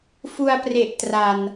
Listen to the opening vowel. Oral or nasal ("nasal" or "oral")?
oral